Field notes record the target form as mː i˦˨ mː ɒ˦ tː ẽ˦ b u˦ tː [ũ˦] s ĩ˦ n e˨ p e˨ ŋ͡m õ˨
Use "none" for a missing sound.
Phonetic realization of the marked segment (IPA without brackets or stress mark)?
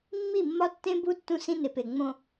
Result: ũ˦